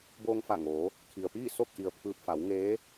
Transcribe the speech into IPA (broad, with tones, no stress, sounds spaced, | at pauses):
b oː˧ ŋ f a˧˩ ŋ oː˩˧ | kʰ i˩ ə̯ p iː˥˨ s o˥˨ k̚ ʔ i˩ ə̯ pʰ ɯː˧ p̚ f a˩˧ w ŋ eː˧˥